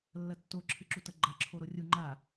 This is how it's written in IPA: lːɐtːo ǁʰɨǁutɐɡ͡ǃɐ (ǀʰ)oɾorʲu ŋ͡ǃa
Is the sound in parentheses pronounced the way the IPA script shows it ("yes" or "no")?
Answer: no